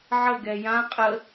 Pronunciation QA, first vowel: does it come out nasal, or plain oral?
oral